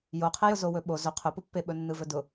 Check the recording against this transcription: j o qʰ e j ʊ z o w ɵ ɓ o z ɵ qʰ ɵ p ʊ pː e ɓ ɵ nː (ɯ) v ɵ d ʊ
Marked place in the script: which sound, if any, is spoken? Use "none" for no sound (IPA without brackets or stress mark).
ɯ